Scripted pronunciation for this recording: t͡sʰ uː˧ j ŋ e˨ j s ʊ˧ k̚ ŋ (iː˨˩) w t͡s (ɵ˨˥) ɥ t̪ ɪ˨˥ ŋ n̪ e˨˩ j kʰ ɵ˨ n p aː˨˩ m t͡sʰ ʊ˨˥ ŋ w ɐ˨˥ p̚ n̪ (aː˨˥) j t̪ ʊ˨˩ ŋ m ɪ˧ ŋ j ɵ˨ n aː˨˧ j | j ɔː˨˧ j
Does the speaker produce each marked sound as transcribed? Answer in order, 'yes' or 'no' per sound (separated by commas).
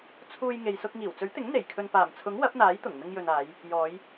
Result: yes, yes, yes